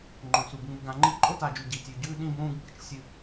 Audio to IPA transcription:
ŋ͡ǃõ˨su˨b ŋ͡mu˨ɡã˨ŋ͡ǃi˦ ǃʼo˦ta˨d͡ʒʉ˨ ɟi˨tʲʉ˨ɟʉː˦ ɗĩ˦bũː˦ɡɓɨ˦˨t͡ʃ sʲɨ˦

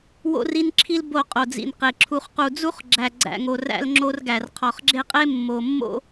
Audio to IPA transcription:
wo̰˦ri˦nǁʰi˦l bo˨ qʼo˨d͡zḭ˨nqe˨ ǁʰu˨χqu˨d͡zu˦χɡ͡ǁæ˨ ɡ͡ǀæ̰˨ŋo˨ ræ̰˦lŋ͡ǁo˦rɡæ˨r qʰɒ˨χɡ͡ǁe˦qʼe˦ mːo˨mːo̰˦

